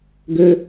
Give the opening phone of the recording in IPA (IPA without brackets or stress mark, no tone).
ɡ